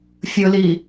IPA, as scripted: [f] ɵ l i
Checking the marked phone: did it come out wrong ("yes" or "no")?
yes